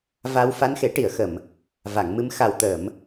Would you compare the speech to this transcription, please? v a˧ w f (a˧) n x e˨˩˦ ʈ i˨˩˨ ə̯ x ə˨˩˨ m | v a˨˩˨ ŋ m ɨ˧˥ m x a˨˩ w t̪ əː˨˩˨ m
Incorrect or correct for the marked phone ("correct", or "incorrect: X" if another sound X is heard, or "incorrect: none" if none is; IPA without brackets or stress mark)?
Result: correct